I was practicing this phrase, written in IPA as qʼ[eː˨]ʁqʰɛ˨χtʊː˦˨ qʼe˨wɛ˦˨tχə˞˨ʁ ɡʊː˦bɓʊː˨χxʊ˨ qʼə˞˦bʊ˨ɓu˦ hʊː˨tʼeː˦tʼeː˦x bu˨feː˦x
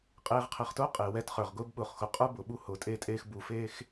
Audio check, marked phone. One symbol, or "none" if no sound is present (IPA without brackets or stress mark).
eː˨